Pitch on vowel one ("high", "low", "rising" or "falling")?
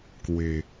low